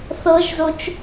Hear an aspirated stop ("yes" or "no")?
no